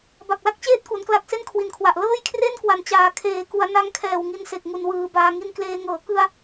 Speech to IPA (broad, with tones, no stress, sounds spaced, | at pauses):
b a˨˩ k̚ l a˥˩ k̚ t͡ɕ eː˥˩ t̚ k u˩˦ n k l a˦˥ k̚ s e˥˩ n kʰ w i˨˩ n kʰ w a˨˩ ʔ l ɤː˥˩ j kʰ r e˥˩ n k w a˩˦ n t͡ɕ aː˨˩ kʰ eː˨˩ k u˩˦ a̯ n a˦˥ ŋ kʰ ɛː˨˩ w ŋ i˧ n s e˨˩ k̚ ŋ u˨˩ n w ɯː˩˦ b aː˧ ŋ i˦˥ n k l eː˧ ŋ ɤː˩˦ k ɯ˧ a̯